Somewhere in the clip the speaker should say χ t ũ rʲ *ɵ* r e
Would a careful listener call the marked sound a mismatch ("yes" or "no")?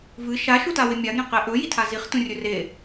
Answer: no